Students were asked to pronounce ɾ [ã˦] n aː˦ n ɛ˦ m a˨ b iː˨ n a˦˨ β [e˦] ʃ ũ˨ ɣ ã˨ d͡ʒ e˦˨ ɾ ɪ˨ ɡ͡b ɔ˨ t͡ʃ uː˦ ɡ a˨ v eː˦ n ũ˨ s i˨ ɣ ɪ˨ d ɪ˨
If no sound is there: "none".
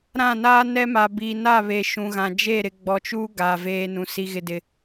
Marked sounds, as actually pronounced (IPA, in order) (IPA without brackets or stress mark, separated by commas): ã˦˨, e˨